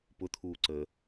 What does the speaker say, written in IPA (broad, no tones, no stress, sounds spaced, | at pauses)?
p ʊ t̪ʰ uː ǀ əː